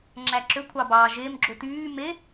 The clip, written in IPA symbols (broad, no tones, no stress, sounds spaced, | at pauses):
ŋ͡ǁ æ ǁ ø kʷʰ ɑ b ɑː ʒ e m ɡ͡ǁ o t yː m e